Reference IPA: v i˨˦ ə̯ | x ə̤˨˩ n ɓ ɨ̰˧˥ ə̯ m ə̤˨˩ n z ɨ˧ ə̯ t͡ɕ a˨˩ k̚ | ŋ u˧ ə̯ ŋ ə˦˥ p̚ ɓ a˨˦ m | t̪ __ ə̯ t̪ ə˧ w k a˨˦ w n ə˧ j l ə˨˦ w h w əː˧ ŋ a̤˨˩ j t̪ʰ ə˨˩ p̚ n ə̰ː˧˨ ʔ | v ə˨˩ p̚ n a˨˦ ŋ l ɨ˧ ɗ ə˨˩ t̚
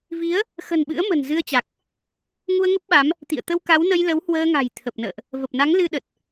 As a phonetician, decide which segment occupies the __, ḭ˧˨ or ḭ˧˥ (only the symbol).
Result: ḭ˧˨